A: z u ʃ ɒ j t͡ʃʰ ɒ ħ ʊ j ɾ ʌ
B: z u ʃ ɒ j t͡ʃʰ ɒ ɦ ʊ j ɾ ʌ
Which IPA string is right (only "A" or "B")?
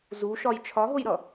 B